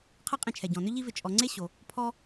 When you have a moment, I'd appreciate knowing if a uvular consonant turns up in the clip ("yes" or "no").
yes